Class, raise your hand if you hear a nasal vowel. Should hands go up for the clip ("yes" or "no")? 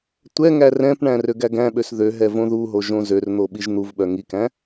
yes